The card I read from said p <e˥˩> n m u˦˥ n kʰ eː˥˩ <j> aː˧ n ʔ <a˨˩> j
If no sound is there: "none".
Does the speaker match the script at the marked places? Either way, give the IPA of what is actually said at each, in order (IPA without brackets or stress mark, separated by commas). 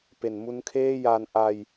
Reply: e˩˦, j, a˧